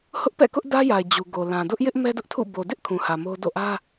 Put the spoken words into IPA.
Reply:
h ʊ˦ ʔ p ɛ̰˦˨ k ʊ˦ ʔ d ä˦ j a˨ ɪ̯ d͡ʑ u˨ ɡ o˨ l ã˨ d ʊ˦ ʔ j ɪ˦ ʔ m ɛ˦ d ʊ˦ ʔ tʰ ṵ˦˨ b o˨ d ɪ˦ ʔ kʰ ũ˨ h ä˨ m o˦ d o̰˦˨ ʔ ä˦

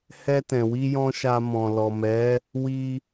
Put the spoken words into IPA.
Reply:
h ɛ˧ t ɛ̃˨ w i˧ j ɔ̃˧ ʃ a˧ m ɔ̃˨ l ɔ˨ m ɛ˨˦ | w i˧

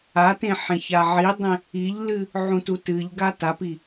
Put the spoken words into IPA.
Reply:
a t ẽ ħ ẽ ç a ʕ i dˤ ẽ | i ʎ l ɨ | ʕ ũ t u t ɨ ʎ ɡ a t a p i

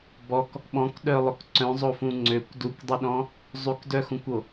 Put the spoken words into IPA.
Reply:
b ɔ k | ɓ ɔ̃ k ɗ œ lˠ ʊ k ǀ œ̃ zˤ o f ũ ŋ͡ǀ ø kʷ d u kʷ dˤ ɪ ɗ ɔ̃ | zˤ y k d œ x ũ kʷ o

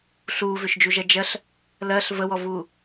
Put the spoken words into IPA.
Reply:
ɬ uː v ʏ ʃ d͡ʒ u ʒ ɜ d͡ʒ ɜ ɬ | l ɜ ɬ v ə w ɔ v uː

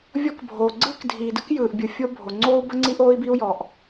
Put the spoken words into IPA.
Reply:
vʲ ɔ˥ k bʱ oː˩ ɡ͡ǀ ɯː˥ k dʱ iː˩ d ɯ˥ k j ɯː˩ ʔ bʲ ɯ˩ fʲ o˥ bʱ o˩ ŋ͡ǀ oː˥ u̯ b ə˥ ŋ͡ǀ i˥ ʔ oː˥ i̯ b i˥ u̯ j ɔ˩ ʔ

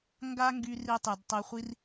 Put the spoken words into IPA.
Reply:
ŋ ɡ a˥ ŋ ɡ y˦ r i˦ tˤ y˨ d tˤ e˦ χʷ i˥ r

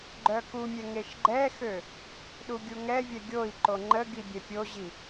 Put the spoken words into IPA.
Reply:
ɡ͡ǃ œ k u mʲ ɛ ŋ e ʃ ɡ͡ǃ ɛ x ø | ɗ u ɡʲ u ŋ ɛ vʲ ɛ ɡʲ o i̯ ǃ o ŋ͡ǃ ə ɡ i bʲ ɛ pʲ o ʑ i

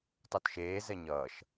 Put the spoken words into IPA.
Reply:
tˤ o t ʃ eː z ɛ ɲ ʌː ʃ

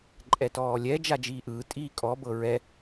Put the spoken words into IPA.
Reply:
ǃʼ ɛ t ɔː lʲ ɛ d͡ʒ a d͡ʒ iː ʔ ɯː tʼ iː kʼ ɔ b ɤ ɹ ɛ

